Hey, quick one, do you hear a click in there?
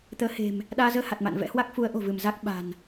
no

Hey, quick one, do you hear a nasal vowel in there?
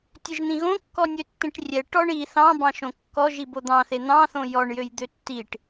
yes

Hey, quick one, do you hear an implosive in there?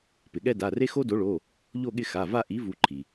yes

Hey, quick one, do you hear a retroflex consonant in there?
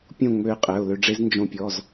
yes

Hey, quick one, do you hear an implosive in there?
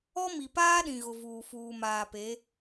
yes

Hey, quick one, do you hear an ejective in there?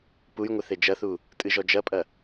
yes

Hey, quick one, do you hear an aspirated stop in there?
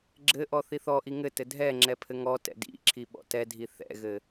yes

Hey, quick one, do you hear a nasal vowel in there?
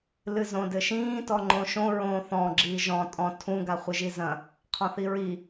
yes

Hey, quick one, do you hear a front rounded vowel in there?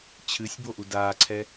no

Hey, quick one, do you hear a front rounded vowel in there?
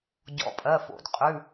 no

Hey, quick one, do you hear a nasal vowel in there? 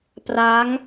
no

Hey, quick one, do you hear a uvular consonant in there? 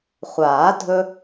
yes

